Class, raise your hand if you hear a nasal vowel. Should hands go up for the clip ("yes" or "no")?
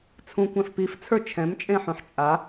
yes